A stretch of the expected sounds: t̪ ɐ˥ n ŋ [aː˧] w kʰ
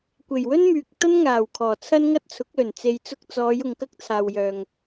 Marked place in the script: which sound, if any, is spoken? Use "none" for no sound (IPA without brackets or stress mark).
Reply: aː˨˩